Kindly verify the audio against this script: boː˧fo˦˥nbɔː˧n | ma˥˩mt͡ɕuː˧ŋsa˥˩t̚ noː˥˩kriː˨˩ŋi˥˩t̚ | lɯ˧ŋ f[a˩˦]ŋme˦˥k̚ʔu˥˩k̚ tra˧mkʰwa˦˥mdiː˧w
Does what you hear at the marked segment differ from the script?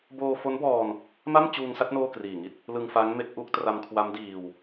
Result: yes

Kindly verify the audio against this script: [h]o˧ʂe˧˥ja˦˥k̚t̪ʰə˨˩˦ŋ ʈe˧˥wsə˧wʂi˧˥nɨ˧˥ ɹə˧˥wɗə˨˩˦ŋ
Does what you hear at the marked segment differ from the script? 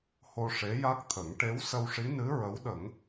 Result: no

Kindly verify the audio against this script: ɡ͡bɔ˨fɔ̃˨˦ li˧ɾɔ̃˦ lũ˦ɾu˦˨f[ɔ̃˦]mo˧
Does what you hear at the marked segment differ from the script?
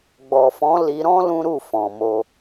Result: yes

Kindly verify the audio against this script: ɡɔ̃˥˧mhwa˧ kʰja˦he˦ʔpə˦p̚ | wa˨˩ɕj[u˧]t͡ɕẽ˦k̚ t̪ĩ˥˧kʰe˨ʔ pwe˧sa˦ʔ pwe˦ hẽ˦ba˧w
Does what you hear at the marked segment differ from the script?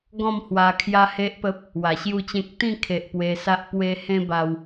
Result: yes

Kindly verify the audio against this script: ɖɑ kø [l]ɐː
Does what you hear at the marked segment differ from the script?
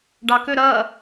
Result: yes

